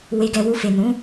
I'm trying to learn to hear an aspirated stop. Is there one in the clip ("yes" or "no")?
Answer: no